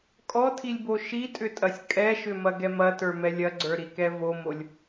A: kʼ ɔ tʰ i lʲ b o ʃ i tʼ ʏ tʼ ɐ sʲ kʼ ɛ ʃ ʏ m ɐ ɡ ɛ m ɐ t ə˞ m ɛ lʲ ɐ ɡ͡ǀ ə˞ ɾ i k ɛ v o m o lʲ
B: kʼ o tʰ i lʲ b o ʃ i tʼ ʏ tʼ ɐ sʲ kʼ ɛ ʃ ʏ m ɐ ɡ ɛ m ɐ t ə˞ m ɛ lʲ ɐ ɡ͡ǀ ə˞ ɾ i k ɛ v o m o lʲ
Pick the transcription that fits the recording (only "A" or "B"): A